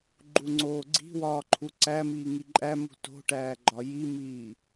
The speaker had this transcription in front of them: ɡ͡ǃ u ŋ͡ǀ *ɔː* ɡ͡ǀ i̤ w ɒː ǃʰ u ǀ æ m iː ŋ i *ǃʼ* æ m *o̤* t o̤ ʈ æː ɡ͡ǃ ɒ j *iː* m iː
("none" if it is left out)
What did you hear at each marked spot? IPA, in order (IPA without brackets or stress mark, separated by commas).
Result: oː, ǃʼ, ṳ, i